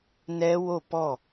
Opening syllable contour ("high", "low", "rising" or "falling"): high